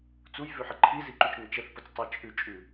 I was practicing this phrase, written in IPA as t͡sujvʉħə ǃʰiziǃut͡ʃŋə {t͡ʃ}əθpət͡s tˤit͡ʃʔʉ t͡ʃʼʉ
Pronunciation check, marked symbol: correct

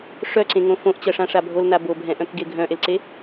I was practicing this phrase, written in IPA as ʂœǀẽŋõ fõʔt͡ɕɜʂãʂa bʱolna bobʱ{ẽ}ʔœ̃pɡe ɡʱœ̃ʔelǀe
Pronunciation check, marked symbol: incorrect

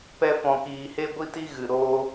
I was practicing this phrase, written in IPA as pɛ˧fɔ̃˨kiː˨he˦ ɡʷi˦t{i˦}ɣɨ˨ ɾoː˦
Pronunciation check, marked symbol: correct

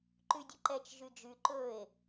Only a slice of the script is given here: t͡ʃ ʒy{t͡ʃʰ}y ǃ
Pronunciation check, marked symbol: incorrect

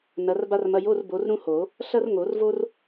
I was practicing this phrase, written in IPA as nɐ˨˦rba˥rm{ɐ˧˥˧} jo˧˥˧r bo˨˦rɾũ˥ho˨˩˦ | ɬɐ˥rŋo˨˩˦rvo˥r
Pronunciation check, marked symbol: correct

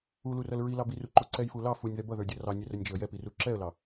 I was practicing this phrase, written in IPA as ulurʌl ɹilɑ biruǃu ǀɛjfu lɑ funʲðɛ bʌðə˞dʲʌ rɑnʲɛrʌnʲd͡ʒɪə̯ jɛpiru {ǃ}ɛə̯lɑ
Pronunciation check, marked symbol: incorrect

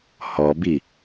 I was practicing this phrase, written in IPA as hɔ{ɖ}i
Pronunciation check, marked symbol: incorrect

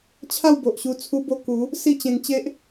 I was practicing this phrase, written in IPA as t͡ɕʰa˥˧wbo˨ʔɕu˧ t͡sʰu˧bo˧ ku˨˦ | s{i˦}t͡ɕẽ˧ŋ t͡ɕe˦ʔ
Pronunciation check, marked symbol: incorrect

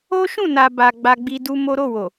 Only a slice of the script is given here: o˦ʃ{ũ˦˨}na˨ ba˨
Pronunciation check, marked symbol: correct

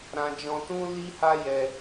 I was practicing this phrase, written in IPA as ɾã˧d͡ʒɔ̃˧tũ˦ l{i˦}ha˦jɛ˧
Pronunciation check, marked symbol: correct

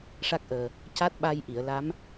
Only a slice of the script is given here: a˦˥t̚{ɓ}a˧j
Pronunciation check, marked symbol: correct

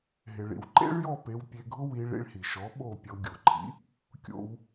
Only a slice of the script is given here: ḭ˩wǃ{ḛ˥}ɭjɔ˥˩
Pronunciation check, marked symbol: correct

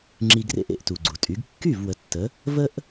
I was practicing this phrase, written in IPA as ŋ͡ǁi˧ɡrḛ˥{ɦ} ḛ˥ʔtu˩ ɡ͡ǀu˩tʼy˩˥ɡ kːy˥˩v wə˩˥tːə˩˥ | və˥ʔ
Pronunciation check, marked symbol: incorrect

